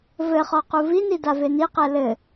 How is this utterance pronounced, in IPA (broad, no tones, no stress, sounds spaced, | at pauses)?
v ɘ χ ɔ q u v i n i d a v e n i q ɛ l ɘ